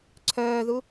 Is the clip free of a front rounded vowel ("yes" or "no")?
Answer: no